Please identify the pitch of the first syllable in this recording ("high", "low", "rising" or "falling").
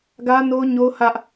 high